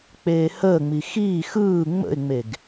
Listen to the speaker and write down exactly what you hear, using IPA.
k͡p eː h əː ŋ͡m i x iː x ɯː ŋ͡m ə̰ ɪ̯ ŋ͡m e ɡ

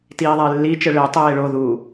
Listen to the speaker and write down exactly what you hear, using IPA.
t iː ðˤ ɛ ɪ̯ lː i t͡ʃ ɘ ɭ e tˤ eː ɭ o ð uː

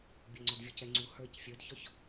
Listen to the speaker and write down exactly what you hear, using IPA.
bʲ ɔ ŋ͡ǀ ɒ d vʲ ɔ c ɛ ŋ͡ǀ u h ə˞ c fʲ ə˞ d ç ɒ ç

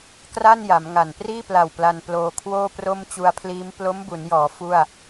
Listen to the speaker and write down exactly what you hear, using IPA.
k r a˥˩ n j a˩˦ m ŋ a˨˩ n p r iː˥˩ p l a˨˩ w p l a˧ n p l oː˧ kʰ w oː˥˩ p r o˥˩ m t͡ɕ u˧ a̯ pʰ l iː˦˥ m p l o˦˥ m b u˩˦ n j ɔː˩˦ f u˥˩ a̯

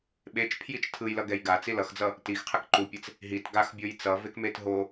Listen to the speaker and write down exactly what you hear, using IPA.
ɓ e t͡ʃ pʰ j i t͡ʃ tʰ ɯ j l ʌ ɡ ɛ j ɡ a t͡s i l ʌ x d͡z ʌ | t i x qʰ ɛ k ǃ u pʲ ɛ t͡s | ɦ i t ɡ a x bʲ o j t͡s ʌ v e k m e t ɦ o

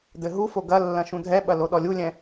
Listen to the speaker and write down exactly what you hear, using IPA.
d ɘ ɦ u f o ɡ ɐ lː ɐ̃ ʃ ũ dʱ ɛ ɓ ɐ l o ɗ ɔ lʲ u lʲ ɛ̃

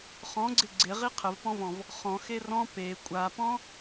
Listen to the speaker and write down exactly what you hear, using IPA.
χ ɔ̃ ɡ͡ǀ ɪ ɡ͡ǀ ɪ ʁ i qʰ ə v p ɔ̃ v ɔ̃ v | χ ɔ̃ x e r ɔ̃ p e kʷʼ a p ɔ̃

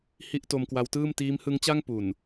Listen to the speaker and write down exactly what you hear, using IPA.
h i˥˩ ʔ t o˧ m k w a˦˥ w t ɯː˥˩ m t iː˦˥ m h ɯ˦˥ ŋ t͡ɕ a˥˩ ŋ p u˨˩ n

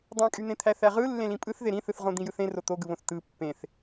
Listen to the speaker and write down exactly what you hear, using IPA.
dˤ ẽ kʼ y n̪ ẽ t̪ʰ æ θ æ ʁ ɯ lː ẽ l ĩ pʼ ɯ θ ð e ɾ ĩ θ ɯ θ ʁ õ d̪ ĩ j ɯ θ ẽ r o t̪ o ɡ ɯ β õ θ t ɯ pː ẽ θ

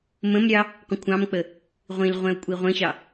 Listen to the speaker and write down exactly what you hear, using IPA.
m ə̃ m ɾʲ ɑ | qʷ ə̃ kʷʰ ɑ̃ m k͡p ə | ʁʷ ĩ l ʁʷ ɛ̃ o̯ kʷʼ i ʁʷ ə̃ ɕ ɑ

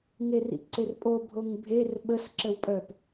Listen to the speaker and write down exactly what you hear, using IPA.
ŋ e r ḭ ǀ e r pʼ o bʱ o ŋ bʱ e r ɓ ə s ǁ ə w pʼ œ p

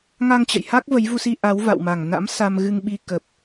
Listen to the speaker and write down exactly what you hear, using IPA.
ŋ a˧ ŋ t͡ɕ ə̰˧˨ j h a˦˥ k̚ v ə˨˦ j v u˧ s i˧ ʔ a˨˦ w v a̰˧˨ w m a˨˩ ŋ n a̰˧˥ m s a˧ m ɣ ɨ˧ ŋ ɓ i˧ k ə˨˩ p̚

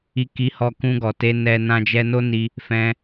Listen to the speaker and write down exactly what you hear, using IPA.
i˧ k i˧ h ɔ˧ k ũ˧ ɡ ɔ˨ t e˧ n ɛ˧ n ã˧ d͡ʒ ɛ˧ n o˦ n i˧ | f ɛ̃˧

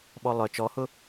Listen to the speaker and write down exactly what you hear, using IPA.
ɓ ɔ lˠ œ t͡ʃ ɔ h ʊ

